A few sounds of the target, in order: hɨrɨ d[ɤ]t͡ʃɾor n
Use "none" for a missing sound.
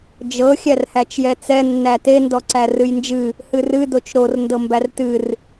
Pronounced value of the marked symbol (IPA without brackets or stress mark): o